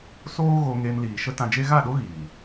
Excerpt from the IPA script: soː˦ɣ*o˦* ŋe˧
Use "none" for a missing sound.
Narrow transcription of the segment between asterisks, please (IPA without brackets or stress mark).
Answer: o˧